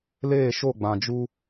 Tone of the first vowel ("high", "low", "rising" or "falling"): falling